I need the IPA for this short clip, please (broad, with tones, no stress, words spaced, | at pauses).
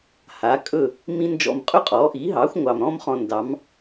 haː˩˥kʼɵ˥˩ | mĩ˥nd͡ʒɔ̰˥˩m qʼɵ˥qʼɔː˩˥ʔiː˩˥ɦɑː˩˥xʷ ŋʷɑ˩mɾɔ̃˥m χɔ̃˧ndɑ˩˥m